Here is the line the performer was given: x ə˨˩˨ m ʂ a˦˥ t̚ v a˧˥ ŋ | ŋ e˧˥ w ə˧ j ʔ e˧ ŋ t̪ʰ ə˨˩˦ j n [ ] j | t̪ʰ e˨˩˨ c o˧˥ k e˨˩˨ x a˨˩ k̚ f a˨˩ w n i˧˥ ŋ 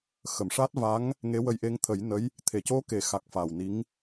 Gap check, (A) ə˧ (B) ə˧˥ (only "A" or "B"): B